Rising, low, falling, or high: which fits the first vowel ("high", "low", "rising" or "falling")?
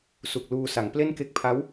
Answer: low